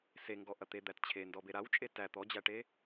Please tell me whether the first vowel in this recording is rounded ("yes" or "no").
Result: no